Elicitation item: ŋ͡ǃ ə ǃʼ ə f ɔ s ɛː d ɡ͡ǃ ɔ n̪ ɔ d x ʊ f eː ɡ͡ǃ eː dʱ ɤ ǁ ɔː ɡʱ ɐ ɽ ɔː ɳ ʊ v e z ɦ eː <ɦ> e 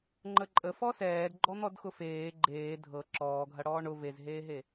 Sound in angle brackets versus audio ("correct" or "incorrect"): correct